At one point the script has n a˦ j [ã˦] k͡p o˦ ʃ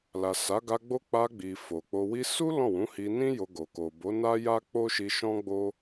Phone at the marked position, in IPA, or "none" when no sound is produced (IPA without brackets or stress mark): a˦